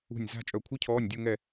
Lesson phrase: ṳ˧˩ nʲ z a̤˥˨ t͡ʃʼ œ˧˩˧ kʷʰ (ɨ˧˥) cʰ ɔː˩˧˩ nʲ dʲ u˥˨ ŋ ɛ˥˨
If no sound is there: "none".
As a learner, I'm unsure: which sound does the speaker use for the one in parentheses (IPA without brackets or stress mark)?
ɨ˧˥